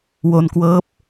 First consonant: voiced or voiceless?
voiced